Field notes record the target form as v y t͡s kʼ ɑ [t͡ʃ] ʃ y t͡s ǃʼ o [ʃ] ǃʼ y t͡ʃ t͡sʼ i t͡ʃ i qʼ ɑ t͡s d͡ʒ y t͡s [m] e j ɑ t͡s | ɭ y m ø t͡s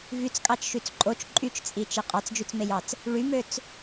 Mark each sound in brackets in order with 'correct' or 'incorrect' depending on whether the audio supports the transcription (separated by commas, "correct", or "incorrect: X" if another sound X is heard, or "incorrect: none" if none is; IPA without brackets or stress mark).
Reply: correct, incorrect: t͡ʃ, correct